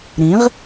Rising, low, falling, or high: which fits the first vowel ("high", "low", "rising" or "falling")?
rising